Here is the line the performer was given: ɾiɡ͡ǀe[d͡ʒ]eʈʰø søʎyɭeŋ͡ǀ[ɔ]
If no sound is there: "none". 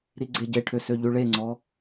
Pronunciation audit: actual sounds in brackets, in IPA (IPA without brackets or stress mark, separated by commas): ɟ, ɔ